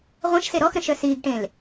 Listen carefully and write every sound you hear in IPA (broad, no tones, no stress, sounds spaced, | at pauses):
ʁʷ ɛ̃ ʃ s e ɾ ɔ x ɾ ə̃ ʃ œ s iː ɡ ʈ ẽ l